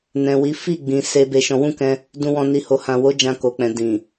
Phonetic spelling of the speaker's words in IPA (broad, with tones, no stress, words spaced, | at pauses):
nɛ̃˨wi˨˦ fi˦˨ ɡ͡bĩ˨se˧ be˧ʃɔ̃˧ wũ˦kɛ̃˧ | dũ˨wɔ̃˨ni˨ ho˨hã˨wo˨˦ d͡ʒã˧ ko˨k͡pɛ̃˨ dĩ˨